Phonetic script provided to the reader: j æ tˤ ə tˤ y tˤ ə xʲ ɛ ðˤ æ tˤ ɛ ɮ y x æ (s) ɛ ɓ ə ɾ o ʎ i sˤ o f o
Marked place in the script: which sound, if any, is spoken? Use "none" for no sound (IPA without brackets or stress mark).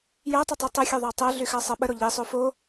sˤ